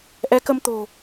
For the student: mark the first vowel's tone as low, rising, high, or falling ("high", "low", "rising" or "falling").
rising